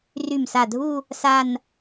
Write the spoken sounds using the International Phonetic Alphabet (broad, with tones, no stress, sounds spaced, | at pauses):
r y˧˩ m s a˧˩ dʱ u˥˧ | s a˥˧ n